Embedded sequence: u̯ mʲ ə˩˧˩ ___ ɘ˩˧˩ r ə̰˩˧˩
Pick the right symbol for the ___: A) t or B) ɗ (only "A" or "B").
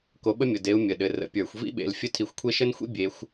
B